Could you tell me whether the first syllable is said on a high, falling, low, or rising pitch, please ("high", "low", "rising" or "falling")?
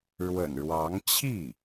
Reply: low